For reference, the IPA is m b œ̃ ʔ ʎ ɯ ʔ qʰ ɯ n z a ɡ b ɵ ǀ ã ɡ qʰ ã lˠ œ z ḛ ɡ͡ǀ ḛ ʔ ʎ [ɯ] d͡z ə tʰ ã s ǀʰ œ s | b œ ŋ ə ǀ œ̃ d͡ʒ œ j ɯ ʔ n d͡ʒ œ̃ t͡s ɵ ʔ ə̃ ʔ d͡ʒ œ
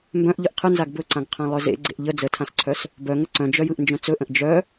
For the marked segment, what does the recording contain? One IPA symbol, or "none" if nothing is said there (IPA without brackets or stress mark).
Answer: ə